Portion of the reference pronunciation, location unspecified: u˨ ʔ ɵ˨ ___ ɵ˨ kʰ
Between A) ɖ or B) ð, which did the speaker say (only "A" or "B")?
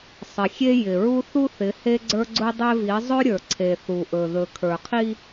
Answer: B